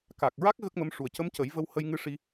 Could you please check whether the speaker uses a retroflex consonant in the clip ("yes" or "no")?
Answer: yes